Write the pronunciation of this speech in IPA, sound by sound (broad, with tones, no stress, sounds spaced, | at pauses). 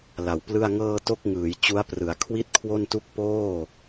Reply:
l a˨˩ w p l ɯ˥˩ a̯ ŋ ɤː˧ t o˥˩ k̚ ŋ ɯː˩˦ j t͡ɕ u˦˥ a̯ p r ɯ˩˦ a̯ kʰ w i˥˩ t̚ kʰ w o˥˩ n t u˥˩ k̚ p oː˥˩